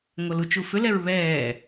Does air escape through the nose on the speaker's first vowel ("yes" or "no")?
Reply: no